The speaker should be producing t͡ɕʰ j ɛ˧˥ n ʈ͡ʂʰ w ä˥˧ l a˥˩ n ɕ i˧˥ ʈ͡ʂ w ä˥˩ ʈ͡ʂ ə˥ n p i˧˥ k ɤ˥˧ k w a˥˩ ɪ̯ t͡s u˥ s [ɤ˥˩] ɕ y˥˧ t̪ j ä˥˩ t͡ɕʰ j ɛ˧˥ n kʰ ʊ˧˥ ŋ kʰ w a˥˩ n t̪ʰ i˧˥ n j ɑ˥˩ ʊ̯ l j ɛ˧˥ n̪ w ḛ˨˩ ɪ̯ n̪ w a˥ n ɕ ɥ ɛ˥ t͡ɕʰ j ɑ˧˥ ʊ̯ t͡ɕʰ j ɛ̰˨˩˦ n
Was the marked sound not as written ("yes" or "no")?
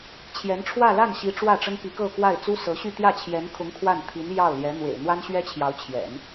yes